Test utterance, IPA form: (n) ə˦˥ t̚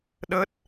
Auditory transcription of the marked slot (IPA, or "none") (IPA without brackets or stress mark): ɗ